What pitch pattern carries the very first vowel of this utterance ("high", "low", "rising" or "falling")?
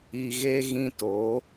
low